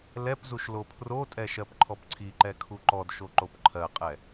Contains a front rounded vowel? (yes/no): no